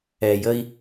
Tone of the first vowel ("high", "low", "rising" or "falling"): low